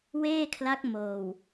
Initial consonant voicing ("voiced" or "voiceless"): voiced